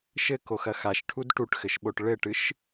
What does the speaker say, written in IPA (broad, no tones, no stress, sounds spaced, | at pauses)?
ʃ ɘ k o x ɐ x a ʃ ʈʰ u d ʈ u ʈ x ɘ ʃ ɓ o ʈ ɭ ɘ ʈ ɨ ʃ